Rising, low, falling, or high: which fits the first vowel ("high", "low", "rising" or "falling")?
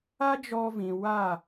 high